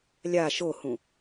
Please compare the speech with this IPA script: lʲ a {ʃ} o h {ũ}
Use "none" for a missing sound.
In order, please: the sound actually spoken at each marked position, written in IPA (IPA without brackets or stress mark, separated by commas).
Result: ʃ, ũ